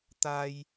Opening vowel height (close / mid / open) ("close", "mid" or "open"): open